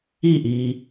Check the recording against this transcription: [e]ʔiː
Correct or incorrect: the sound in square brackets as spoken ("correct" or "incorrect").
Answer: incorrect